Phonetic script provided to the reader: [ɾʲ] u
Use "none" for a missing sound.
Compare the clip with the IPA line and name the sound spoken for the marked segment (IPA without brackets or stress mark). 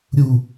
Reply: ɾʲ